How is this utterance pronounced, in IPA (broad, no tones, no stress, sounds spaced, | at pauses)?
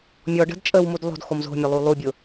mʲ ɔ ɖ ə̤ d t͡ʃʼ ə w m u d lˠ o̤ d x o m z o̤ mʲ o lˠ u lˠ u bʲ ʊ